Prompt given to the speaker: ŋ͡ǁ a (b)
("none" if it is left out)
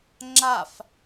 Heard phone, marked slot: f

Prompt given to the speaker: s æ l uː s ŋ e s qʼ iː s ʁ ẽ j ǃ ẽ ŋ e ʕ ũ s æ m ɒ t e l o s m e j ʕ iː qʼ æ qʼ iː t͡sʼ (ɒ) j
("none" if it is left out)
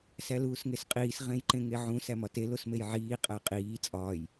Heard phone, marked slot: ɒː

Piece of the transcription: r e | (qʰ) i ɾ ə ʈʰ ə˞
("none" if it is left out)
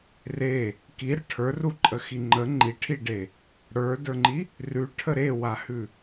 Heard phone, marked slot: k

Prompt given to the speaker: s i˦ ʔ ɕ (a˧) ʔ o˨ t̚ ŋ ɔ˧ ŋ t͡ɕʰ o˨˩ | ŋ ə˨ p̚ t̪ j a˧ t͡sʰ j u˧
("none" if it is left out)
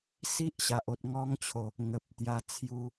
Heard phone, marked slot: a˨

